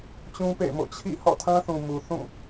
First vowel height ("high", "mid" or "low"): high